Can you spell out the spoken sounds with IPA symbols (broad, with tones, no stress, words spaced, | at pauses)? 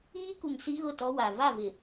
iː˦ku˨ŋ si˦ɣʊ˦˨tɔ˦wa˨ va˦˨vɪ˨